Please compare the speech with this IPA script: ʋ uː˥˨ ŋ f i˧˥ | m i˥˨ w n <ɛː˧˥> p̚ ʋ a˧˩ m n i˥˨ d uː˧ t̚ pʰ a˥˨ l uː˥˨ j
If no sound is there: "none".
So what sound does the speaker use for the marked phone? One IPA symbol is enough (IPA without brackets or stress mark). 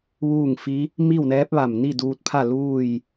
ɛː˧˥